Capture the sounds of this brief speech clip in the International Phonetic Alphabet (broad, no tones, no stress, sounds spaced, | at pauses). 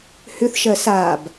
h ʏ θ ʃ ɜ s a b